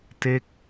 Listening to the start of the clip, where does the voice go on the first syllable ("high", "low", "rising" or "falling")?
falling